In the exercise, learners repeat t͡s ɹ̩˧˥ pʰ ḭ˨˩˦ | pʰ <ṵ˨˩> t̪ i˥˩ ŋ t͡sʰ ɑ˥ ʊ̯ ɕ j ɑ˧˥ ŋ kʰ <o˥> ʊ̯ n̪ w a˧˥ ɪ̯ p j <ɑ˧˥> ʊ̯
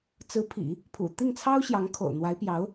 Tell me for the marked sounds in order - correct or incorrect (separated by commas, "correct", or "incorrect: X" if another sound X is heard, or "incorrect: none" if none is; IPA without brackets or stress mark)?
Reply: correct, incorrect: o̰˨˩, correct